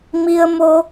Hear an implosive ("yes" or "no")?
no